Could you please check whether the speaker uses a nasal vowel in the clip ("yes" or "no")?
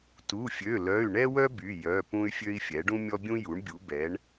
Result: yes